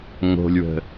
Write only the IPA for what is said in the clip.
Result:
ŋ o̤ lʲ w ə̤

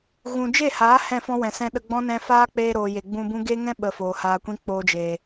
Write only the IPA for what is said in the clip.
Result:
ɣ ũ˨ d͡ʒ e˦˨ h aː˨˦ h ɛ̃˦˨ f ɔ̃˦ w ɛ̃˨ s ɛ̃˦ ɗ ə˧ ɡ͡b ɔ̃˦ n ɛ̃˧ f aː˦ k͡p eː˧ ɾ oː˨ j e˨ ɡ͡b ũ˧ b ũ˦ ɡ e˦ ŋ ɛ̃˦ ɓ ə˨ f oː˨ h aː˧ kʷ ĩ˦ k͡p oː˧ d͡ʒ eː˨

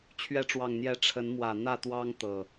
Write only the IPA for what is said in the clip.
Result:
t͡ɕʰ ɥ ɛ˨˦ ʈ͡ʂ w ɑ˨˩ ŋ n̪ j ɛ˨˦ ʈ͡ʂʰ ə˨˦ n m w ä˨˩ n̪ ä˥˨ t̪ w ɑ˦ ŋ t̪ ɤ˨˩

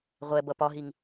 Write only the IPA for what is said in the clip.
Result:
ʁʷ ɛ b ʌ p ɒ ɦ i ŋ

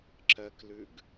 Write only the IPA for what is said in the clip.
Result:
ǁ ɜ k l ʉ ɡ

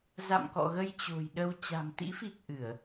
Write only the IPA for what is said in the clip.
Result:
z a̰˧˨ m k ɔ̰˧˨ ɣ ə˧ j t͡ɕ o̤˨˩ j ɗ ə˧ w t͡ɕ a̤˨˩ m t̪ ḭ˧˥ f i˨˩ k̚ ʔ ɨ˧˩˨ ə̯

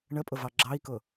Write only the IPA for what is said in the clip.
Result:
ɳ ə pʼ ʊ v ɑ ɡ͡ǁ ɑ i̯ k ʊ

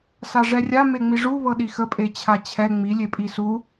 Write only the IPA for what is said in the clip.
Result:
s a ʐ ɛ rʲ a m e ŋ͡m i ʐ u β ɤ ɗ i x ə pʼ e t͡ɕʰ a t͡ɕʰ ɛ ŋ͡m i lʲ e pʼ i s u

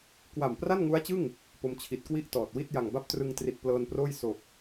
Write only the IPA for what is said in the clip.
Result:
k w a˨˩ m p r a˥˩ n ŋ u˦˥ a̯ t͡ɕ ɯ˥˩ ŋ | p o˧ m t͡ɕʰ i˨˩ t̚ k w i˥˩ ʔ t ɔː˨˩ t̚ w i˥˩ t̚ j a˨˩ ŋ b a˥˩ p̚ t r ɯ˧ ŋ t r i˨˩ t̚ p l ɤː˧ n p r oː˥˩ j s o˨˩ k̚

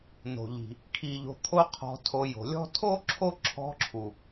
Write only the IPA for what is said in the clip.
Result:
n o̤˩ ʎ i̤˩ | kʰ i˨ ʎ o̤˨ t̪ʰ o˦ qʰ ɔ̤˨ tʰ o˨ j o̤˩ lʲ ɔ̤˥ tʰ o˥ ǁʰ o˦ ǁʰ ɔ̤˦ ǁʰ u˩

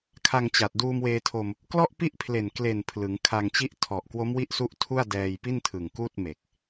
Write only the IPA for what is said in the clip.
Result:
kʰ a˧ ŋ t͡ɕ a˨˩ t̚ d uː˧ m w eː˧ tʰ o˧ m | k l ɔ˥˩ ʔ p i˥˩ ʔ pʰ l e˨˩ n k l e˨˩ n pʰ l ɯ˩˦ ŋ kʰ a˧ ŋ t͡ɕ i˥˩ ʔ tʰ ɔ˨˩ ʔ k w o˦˥ m w i˦˥ ʔ s u˦˥ ʔ tʰ u˥˩ a̯ d ɛː˧ j p i˥˩ n tʰ ɯ˨˩ ŋ k uː˥˩ t̚ m e˨˩ k̚

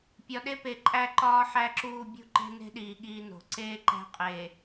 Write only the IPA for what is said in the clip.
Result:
pʲ ɒ˨ ɗ e˦ p e˨ ǃʼ æ˦ ǃ ɒː˦ ħ æ˦ ǁ uː˦˨ bʲ ṳ˦ ǃ e̤˦ n e̤˦ ɗ iː˨ ɠ iː˦ n o̤˨ ǀ eː˦ ǃ æ̤˦ qʼ eː˨

